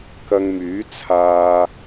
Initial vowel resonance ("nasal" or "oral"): oral